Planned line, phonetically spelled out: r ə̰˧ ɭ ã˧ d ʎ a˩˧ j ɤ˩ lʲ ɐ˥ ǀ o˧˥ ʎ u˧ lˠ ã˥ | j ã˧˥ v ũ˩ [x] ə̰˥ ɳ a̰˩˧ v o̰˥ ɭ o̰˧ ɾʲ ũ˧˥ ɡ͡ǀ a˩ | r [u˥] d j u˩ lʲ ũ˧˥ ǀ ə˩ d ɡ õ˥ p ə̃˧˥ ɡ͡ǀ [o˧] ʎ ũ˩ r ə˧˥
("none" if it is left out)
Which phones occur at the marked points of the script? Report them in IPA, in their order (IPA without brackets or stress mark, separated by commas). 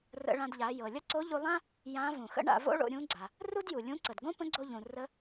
x, u˥, o˧